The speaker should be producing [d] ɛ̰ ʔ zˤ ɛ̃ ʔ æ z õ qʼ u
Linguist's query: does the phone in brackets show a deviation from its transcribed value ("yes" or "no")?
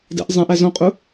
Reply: no